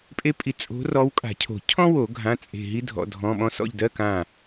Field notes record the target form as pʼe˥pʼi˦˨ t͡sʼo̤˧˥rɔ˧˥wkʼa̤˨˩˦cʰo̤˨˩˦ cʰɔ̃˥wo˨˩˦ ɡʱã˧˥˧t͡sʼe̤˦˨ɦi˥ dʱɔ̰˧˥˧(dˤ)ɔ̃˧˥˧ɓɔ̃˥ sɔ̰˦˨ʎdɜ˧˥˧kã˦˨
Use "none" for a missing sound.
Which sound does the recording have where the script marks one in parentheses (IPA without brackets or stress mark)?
dʱ